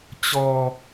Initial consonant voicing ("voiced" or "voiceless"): voiceless